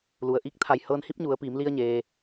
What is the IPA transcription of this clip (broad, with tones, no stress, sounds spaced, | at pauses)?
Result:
l u˩ ə̯ ʔ i˧ k̚ t̪ʰ a˧˩ j h ɤː˧ n h i˧˥ p̚ ɲ u˩˧ ə̯ p iː˩˧ m l i˧ ə̯ ɲ eː˩